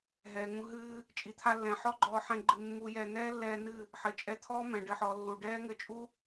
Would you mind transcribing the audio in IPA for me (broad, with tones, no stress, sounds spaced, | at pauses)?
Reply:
ɦ ɛː˨ ŋ ũ˧ ɦ ɨː˧ | t͡ʃʼ i˨ t̪ʰ a˧ lː ɛ̃˨ ħ ɔ˦ ɡ͡ǃ ɔː˧ ħ ɛ̃˧ ɡ͡ǃ ɨ˧ mː u˧ j ɛ˧ n̪ ɛː˦ lː ɛː˧ n ɨ˦˨ | ħ ɘ˨ t͡ʃʼ ɛ˧ t̪ʰ ɔː˦ m ɛ̃˨ ɖ ɘ˦˨ ħ ɔ˧ lː u˨ ɖ ɛː˦ ŋ ɘ˧ t͡ʃʼ u˦